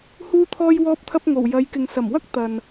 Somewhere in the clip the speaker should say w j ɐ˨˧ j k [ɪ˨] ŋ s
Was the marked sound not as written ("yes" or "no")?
no